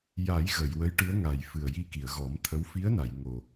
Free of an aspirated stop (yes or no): no